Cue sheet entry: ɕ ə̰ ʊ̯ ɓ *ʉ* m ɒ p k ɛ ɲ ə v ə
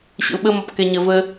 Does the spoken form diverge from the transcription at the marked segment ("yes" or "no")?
yes